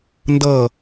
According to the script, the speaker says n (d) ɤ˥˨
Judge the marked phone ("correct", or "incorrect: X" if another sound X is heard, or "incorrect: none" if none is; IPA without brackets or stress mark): correct